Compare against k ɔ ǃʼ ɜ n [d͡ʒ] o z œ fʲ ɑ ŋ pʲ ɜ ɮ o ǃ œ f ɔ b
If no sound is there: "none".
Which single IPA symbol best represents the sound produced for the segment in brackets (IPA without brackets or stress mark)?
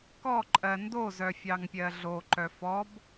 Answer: d